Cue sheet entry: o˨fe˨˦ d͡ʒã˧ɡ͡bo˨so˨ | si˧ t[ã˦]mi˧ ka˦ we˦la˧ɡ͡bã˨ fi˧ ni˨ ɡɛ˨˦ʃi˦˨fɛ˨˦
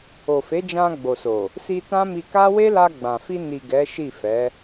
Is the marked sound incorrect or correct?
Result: correct